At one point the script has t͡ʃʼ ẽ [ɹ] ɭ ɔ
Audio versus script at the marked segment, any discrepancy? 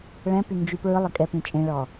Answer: yes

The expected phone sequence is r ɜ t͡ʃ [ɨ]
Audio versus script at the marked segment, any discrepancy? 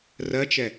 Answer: yes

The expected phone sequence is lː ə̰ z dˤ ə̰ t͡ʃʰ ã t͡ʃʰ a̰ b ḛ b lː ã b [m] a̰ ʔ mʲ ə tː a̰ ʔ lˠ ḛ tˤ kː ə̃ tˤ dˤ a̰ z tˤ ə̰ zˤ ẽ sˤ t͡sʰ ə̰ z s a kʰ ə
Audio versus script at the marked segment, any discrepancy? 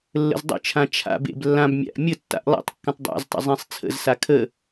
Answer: yes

